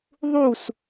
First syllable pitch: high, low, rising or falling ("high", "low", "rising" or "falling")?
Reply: falling